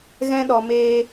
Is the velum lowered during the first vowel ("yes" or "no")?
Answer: yes